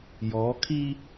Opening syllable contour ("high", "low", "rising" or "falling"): rising